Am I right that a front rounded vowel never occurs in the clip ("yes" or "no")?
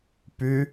no